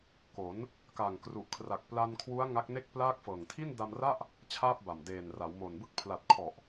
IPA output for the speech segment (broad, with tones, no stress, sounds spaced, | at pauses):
k o˩˦ n | k a˨˩ ŋ k r u˨˩ ʔ kʰ r a˨˩ k̚ p l a˧ n kʰ w u˦˥ a̯ ŋ a˦˥ k̚ n e˥˩ k̚ p l aː˥˩ k̚ f ɤː˨˩ ŋ tʰ i˥˩ n d a˧ m r a˥˩ ʔ | t͡ɕʰ aː˥˩ p̚ b a˨˩ m d eː˨˩ n r a˩˦ w m o˨˩ n b ɯ˥˩ k̚ pʰ l a˨˩ t̚ kʰ ɔ˨˩ ʔ